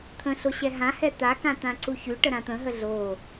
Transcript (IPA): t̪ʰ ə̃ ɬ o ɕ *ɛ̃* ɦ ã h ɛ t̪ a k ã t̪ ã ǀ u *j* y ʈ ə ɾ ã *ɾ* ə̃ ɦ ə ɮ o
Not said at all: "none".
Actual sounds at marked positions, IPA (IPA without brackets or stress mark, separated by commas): ɛ, ç, t̪